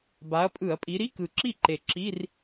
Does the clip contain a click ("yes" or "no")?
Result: yes